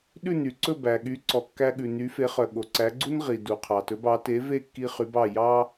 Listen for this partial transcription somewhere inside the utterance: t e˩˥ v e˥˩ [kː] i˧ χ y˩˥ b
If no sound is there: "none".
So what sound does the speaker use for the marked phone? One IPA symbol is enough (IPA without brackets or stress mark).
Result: kː